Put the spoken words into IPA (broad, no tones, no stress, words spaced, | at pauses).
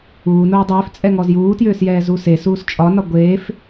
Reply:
uːnoː dˤʏːft͡sʼɛŋɔz juːtjʏːsjɛːzu sesuːs t͡ʃʼɒnɒ ɡʷeːf